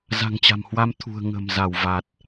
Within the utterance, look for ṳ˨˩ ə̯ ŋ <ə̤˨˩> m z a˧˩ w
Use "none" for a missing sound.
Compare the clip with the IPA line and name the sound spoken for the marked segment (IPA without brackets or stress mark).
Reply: ə̤˨˩